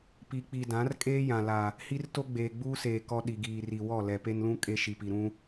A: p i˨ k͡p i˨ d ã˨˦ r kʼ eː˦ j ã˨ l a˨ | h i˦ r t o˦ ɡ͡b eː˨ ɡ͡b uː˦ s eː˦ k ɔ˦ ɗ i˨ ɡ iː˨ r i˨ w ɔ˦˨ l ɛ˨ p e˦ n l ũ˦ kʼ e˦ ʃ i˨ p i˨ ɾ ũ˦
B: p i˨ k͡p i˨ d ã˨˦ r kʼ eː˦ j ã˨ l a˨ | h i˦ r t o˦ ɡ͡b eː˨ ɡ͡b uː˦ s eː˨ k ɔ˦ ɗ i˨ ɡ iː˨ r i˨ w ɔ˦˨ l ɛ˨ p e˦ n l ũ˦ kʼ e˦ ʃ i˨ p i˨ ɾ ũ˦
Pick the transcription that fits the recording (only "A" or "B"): B